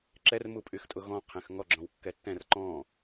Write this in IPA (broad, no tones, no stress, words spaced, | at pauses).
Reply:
ǁɛrmupʼyxtʼʊ ɣɔ̃ qʰɛ̃xŋɔ ɡ͡ǁɔ̃wkːɛtːɛ̃r ǃɔ̃